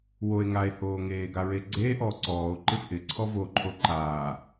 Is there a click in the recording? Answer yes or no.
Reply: yes